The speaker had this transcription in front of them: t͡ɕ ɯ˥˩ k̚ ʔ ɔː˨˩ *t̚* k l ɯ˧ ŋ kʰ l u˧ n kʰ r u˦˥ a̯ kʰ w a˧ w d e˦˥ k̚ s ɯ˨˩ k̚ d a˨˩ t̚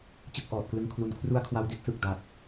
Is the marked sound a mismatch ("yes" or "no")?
no